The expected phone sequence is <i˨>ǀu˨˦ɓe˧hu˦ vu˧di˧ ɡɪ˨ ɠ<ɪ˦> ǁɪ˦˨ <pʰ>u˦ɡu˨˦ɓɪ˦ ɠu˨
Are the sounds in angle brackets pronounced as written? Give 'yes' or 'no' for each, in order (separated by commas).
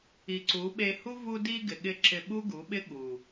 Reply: yes, no, no